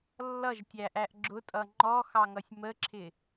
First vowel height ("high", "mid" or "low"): mid